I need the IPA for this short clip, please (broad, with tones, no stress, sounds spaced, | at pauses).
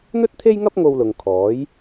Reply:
n̪ ɵ˥ t̚ t̪ʰ e˥ j ŋ ɐ˥ p̚ ŋ o˧ w l ʊ˨ ŋ kʰ ɔː˨˥ j